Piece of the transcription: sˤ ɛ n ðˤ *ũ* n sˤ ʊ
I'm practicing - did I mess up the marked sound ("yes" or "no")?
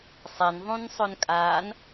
no